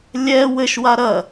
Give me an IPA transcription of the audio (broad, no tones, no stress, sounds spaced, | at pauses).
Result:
lʲ ɛ w ɘ ʃ w a ɾ ɐ